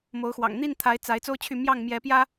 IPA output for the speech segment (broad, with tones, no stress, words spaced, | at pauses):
mo˨˦ʊ̯xwɑ̰˨˩ŋ n̪i˥˨nt̪ʰa˨˦ɪ̯ t͡sa˨˦ɪ̯ t͡so˦ʊ̯t͡ɕʰy˥˨ mjɑ˥˨ŋ mjɛ˨˦pjä˦